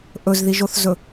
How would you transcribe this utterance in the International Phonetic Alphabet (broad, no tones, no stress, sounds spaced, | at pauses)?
ʔ ɵ z ð i ʒ o θ z ɵ